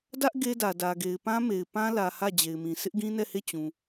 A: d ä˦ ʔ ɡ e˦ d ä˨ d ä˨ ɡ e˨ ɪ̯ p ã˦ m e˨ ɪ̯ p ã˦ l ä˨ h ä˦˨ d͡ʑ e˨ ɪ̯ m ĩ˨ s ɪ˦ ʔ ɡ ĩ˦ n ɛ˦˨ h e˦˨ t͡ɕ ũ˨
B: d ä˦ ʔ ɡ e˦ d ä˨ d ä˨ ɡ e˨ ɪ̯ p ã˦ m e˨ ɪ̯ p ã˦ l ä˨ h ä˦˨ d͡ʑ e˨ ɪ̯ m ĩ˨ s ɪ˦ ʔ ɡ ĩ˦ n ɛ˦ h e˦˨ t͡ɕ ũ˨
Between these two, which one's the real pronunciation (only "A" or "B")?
A